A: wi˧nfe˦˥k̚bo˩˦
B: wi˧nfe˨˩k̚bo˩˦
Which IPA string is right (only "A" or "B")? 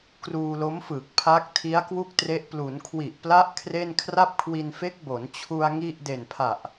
A